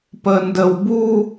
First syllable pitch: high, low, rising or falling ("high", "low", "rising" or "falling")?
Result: high